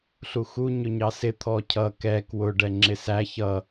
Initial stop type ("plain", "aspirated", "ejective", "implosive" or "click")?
aspirated